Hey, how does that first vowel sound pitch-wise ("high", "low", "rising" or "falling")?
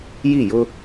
falling